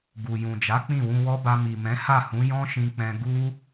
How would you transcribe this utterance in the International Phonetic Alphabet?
ɡ u˨ j ũ˨ d͡ʒ a˨˦ k͡p ĩ˦˨ w ũ˧ w ɔ˦ b a˧ m i˨ m ɛ̃˨˦ h a˦˨ h ũ˨˦ j ɔ̃˦ ʃ ĩ˧ k͡p ɛ̃˧ ɡ u˦

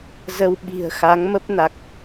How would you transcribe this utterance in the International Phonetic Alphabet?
z ə˧ w ɓ i̤˨˩ ə̯ x a˨˦ ŋ m ə˦˥ p̚ n a˨˩ k̚

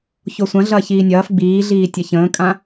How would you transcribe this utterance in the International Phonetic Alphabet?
ç o sʷ ɐ̃ ɮ ɐː ç iː nʲ ɐː f ɡ͡b iː ɮ iː tʲ ɐ ç ə̃ː kʼ ã

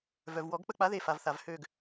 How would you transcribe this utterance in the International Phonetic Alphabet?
v œ˨ v w ɔ˨˩˦ ɡ k͡p ə˦˨ k͡p a˨˥ ð e˦˨ f a˨ v θ a˨ v h ø˦˨ ɡ

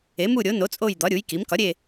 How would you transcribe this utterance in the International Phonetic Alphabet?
e˩˥ m u˦˨ ɾʲ o˩˥ n o˩˥ t͡sʼ o˦˨ j d̪ ɒ˩˥ ɾʲ u˩˥ j k i˩˥ m k ɒ˩˥ ɾʲ e˦˨

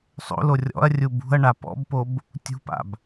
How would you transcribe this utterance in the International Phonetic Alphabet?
sˤ o̰ l o rʲ ɔ̰ ɐ̯ rʲ u b ṳ ɐ̯ ɳ a p ɔ̰ b p o b | tʲ ṳ p a̰ b

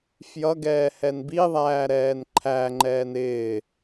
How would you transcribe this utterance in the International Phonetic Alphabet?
f j ʌ ɡ ɛː h ɛ n b i ðˤ æː ɾ ɛː n ǃʰ æ ŋ͡ǃ ɛː n ɪː

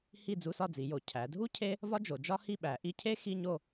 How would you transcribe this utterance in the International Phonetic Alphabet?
h i˥˨ d͡z u˧˥˧ s ɒ˥˨ d͡z i˩˧ j o˩˧ cʰ æ˩˧ dʱ u˥ cʰ e˥ | v ɒ˥ d͡ʒ o˩˧ d͡ʒ ɒ˥ h i˥˨ ɓ æ˩˧ ʔ i˧˥˧ cʰ e˥ x i˧˥˧ ɲ o˥˨

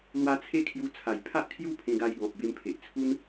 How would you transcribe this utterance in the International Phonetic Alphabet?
l w a˧ t͡sʰ e˦ kʰ j u˧ t͡sʰ a˨˩ j pʰ a˦ ʔ kʰ j u˦ pʰ ẽ˧ ɡ a˧ j ɡ ɔ̃˨ p̚ b e˧ m pʰ e˨ ʔ t͡sʰ u˦ n

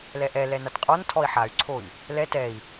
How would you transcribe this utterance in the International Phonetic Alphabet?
l ɛ ʔ ɛ l ɛ n a t qʼ ɔ n tʰ ɔ i̯ ħ a y̯ ǀʰ o i̯ | l ɛ t ɛ i̯

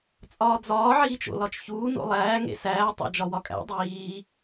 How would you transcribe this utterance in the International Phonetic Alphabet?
t͡sʼ ɒː d͡z ɒː ʕ iː t͡ʃ o̰ l ɒ t͡ʃ ç uː n o̰ lˠ æː ŋ ḛ s æː tˤ æ̰ d͡ʒ ɒ w ɒ kʼ æ̰ dˤ iː

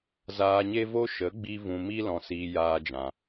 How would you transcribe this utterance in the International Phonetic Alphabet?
z aː˧ ɲ e˦ v o˦ ʃ ə˨˦ ɡ͡b i˧ v ũ˧ m i˦ l ɔ̃˧ s iː˧ j aː˦ d͡ʒ ã˧

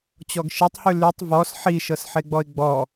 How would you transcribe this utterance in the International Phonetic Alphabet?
t͡ɕ ɔ ɡ ʃ e tˤ h ʉ l ʉ tˤ v ɔ s ħ i ʃ ɤ s ħ e ɡ͡b ɔ ɪ̯ ɡ͡b ɔ

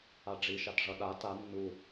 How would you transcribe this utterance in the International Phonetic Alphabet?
a ɖ͡ʐ i ʃ a t ʐ ʌ ɗ a t a nː u

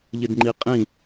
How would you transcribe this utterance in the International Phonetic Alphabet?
ʎ ɪ d ŋ͡ǃ i qʼ ĩ

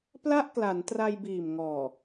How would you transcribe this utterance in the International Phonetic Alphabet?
p l a˥˩ ʔ k l a˩˦ n t r a˧ j b iː˨˩ m ŋ ɔː˨˩

